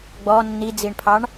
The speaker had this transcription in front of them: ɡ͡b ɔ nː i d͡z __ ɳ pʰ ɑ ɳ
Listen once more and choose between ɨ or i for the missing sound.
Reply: i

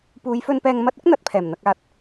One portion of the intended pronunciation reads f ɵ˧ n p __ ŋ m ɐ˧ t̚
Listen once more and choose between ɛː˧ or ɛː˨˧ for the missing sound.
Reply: ɛː˧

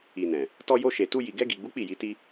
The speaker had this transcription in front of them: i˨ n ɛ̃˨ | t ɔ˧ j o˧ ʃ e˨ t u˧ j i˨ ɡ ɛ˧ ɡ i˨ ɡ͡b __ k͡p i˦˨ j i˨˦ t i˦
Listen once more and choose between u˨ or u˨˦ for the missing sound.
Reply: u˨˦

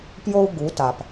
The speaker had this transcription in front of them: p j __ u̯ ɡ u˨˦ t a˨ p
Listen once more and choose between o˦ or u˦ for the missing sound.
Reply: o˦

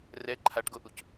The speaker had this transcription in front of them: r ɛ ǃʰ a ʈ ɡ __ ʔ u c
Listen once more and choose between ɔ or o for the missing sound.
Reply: o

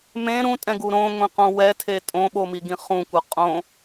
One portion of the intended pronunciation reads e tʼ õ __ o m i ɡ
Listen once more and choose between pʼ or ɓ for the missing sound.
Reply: ɓ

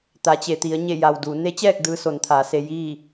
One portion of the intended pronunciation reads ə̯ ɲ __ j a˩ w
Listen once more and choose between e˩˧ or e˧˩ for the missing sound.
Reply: e˧˩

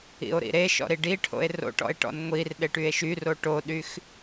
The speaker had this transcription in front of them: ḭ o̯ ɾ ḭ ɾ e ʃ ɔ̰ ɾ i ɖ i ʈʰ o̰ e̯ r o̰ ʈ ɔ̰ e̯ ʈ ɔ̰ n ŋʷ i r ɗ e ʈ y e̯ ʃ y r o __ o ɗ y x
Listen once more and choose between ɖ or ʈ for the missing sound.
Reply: ʈ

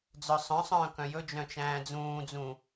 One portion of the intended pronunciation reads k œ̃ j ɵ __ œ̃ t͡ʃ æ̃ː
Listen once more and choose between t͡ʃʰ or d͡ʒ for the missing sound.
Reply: d͡ʒ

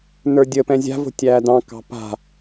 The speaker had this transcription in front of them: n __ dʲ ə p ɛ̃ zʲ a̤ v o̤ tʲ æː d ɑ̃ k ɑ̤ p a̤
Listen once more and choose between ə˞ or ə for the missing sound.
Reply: ə˞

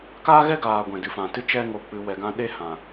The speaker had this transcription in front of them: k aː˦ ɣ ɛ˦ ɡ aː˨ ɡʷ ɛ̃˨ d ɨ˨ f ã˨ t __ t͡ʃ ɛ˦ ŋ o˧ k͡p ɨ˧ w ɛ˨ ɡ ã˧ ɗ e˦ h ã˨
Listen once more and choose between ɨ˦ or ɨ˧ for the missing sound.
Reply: ɨ˧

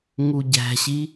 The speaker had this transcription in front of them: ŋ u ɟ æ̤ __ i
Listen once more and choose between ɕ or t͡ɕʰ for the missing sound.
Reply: ɕ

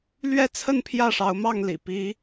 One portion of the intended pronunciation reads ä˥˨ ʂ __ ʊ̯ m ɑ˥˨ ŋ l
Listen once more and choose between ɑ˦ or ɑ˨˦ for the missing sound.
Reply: ɑ˨˦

